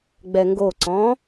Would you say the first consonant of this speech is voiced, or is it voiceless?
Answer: voiced